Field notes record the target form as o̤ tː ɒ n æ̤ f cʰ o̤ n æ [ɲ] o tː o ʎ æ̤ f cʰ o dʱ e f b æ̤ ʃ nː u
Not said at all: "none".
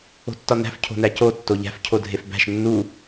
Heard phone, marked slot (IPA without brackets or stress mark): c